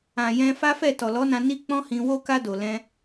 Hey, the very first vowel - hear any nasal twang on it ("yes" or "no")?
yes